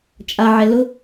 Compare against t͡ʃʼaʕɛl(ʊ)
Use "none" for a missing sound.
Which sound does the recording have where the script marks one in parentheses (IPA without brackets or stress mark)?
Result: ʊ